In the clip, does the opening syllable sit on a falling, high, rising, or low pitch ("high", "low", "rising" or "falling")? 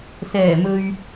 low